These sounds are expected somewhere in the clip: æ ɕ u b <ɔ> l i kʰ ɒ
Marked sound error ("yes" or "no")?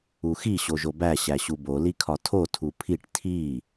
yes